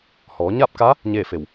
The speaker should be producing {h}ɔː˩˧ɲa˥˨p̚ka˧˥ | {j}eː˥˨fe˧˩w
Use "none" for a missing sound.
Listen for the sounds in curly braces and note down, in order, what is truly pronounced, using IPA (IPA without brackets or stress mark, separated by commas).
h, ɲ